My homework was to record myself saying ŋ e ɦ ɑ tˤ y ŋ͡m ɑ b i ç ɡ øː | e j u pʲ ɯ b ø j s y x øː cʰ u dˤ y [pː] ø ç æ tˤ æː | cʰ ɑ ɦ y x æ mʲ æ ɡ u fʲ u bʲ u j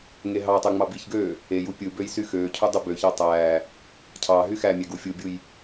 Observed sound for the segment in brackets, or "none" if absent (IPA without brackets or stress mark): b